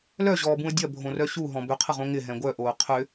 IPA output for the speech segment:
l œ ʑ ɔː b ũ ə̯ dʲ ɐ bʱ õ r œ ɕ u ɦ ɔ̃ b ʏ qʰ ə ʁ õ ŋ ɪ ɦ ɛ̃ ɡʷ œ ʔ oː qʰ ʏ

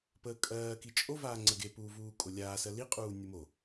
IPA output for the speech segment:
p əː kʼ ɜː k i t͡ʃʼ o v aː ŋ͡ǀ ə ɡ e p uː v uː kʼ o lʲ aː s ɜ l i qʼ uː nʲ u m o

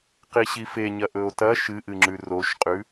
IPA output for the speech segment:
q i ɕ i f e ɲ ɐ ʔ ɵ o̯ t ɐ ʃ ɨ ʔ ɨ ŋ͡ǁ ʉ r o ʃ qʼ ʉ

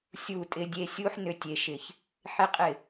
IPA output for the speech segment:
sʲ u˨ tʼ ɪ˨ dʲ e˨ sʲ u˦ ħ n ʏ˧ tʲ e˨ ʃ ɪ˨ ç | ħ ɪ˦ qʼ ɪ˦˨

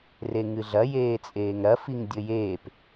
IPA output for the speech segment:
r e ŋ ɨ ɮ ɐ j eː t͡sʼ eː ŋ ɾ ɐ f i ŋ dʲ ɘ j eː p

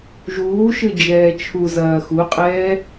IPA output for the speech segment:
ʒ uː ʃ ɨ d͡ʒ ɛː t͡ʃʰ u z ɐː x u qʼ ɛː

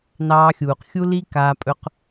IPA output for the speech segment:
n ɑː˧ xʲ uː˨ q xʲ u˦ l i˦ k aː˧ pʼ ɵ˧ q

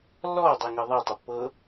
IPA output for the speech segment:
lː ɔ dˤ ɛ ŋ ɤ ðˤ ɛ tˤ ə pː ɤ

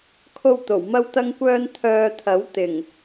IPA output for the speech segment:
kʰ o˥ w t̪ o˨˩ w m ɐ˥ w t̪ ɐ˥ ŋ kʷ œː˥ n t̪ʰ œː˧ t̪ʰ ɐ˨˥ w t̪ ɪ˨˩ ŋ

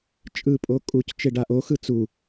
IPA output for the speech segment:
t͡ʃʼ ɯ pʼ o kʼ u c t͡ʃ e ɖ a ʔ o x ɯ t͡s u

